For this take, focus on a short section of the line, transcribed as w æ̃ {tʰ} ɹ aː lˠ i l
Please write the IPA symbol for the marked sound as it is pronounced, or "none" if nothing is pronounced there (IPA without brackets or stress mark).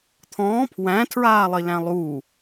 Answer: tʰ